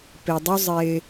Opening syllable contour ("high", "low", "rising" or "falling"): low